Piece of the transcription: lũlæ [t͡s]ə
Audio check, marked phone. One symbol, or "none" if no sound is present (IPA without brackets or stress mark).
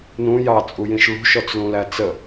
t͡s